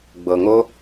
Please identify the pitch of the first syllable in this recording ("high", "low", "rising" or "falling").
low